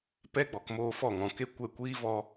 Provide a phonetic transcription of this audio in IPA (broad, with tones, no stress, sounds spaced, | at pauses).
p ɛ˦ ɡ͡b ɔ˨ k m oː˧ f ɔ˦˨ ŋ ɔ̃˨ k e˦ kʷ ɛ˦˨ kʷ iː˦ v ɔ˧